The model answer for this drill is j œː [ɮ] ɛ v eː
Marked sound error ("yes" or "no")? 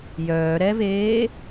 yes